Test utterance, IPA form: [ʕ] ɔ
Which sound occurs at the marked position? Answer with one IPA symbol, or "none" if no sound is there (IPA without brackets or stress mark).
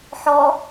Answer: ħ